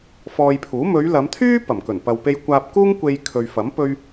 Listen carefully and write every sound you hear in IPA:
fɔː˧jpʰuː˨˥ mɵ˨˧ɥlɐ˨˧mt̪ʰyː˥ pɐ˨˩mkɵ˨˩npɐ˨w pe˧jkʷaː˧p̚kuː˥ŋkʷe˧j kʰɵ˧ɥ fɐ˨˥m pɵ˥ɥ

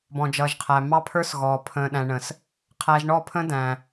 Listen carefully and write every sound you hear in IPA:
bɔ̃˨d͡ʒʌː˨ʒqʰæ˨ mɑ˦pʰə˞˦sɣɔː˨ pʰə̃ː˨ɗæ̃˨ɳə̃˨s | qʰæː˨ʒɳɔ˦˨pʰə̃˦ dæ̃˨

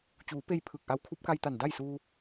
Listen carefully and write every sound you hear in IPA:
t͡ɕuː˩˧ pe˥˨j pʰɯː˧˩k̚ʔa˧˥w kʰu˧˥p̚ka˧jt̪a˧˩n da˥˨jsuː˧

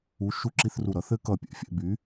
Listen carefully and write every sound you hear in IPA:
u˨˥ ʃu˧˥˧ǁi˧˥˧θru˧˩ɾʌ˨˥ θɘ˦˥ kʌ˧˩pʲɛ̰˧˩fʲɛ̰˥˨ by˨˥

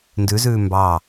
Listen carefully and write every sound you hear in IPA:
ndʉzʉː mbɑ

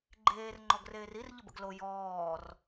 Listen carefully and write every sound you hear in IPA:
ɡ͡ǃeːr ŋ͡ǃɔɡreːrir ʎəbə̰ɡlo jɔːr

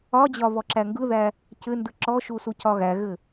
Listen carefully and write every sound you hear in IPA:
ɒd͡ʑɒ βɔǁæŋɡɯðæ | cɘndɯ ǁɔʃu sucɒɣæɣɘ

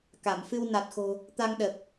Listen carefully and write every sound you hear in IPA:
ka˧˩mfɨ˧w na˨˩t̚xo̤˨˩ | t̪a˧ŋ ɗə˨˩p̚

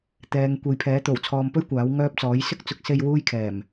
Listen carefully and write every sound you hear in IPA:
t̪ɛː˨˧ŋ kʷe˨˧jpʰɛː˨˥ t̪o˨˩wt͡sʰɔː˨mpɵ˥ɥ kʷaː˨˥wŋœː˥p̚t͡sɔː˨˥j sɪ˥k̚t͡sʊ˨˥k̚se˧j wuː˥jkʰɛː˨˩m

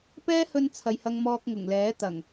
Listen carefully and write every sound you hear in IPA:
pɛː˥hɵ˧n t͡sʰɐ˨jhɐ˧ŋmɔː˧k̚ ŋʊ˨˩ŋlɛː˨˥ t̪ɐ˨˩ŋ

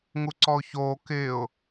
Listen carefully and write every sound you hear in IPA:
ŋuǀɔʊ̯çoː kɪːʊ̯

